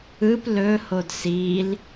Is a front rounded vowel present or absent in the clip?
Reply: absent